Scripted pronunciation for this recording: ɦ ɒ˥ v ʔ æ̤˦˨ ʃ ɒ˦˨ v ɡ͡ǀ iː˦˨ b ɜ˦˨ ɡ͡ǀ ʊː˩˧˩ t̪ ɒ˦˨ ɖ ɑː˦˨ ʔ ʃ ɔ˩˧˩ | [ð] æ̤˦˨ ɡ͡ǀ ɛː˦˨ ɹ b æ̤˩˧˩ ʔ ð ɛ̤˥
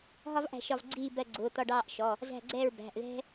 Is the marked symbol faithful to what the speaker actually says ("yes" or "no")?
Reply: no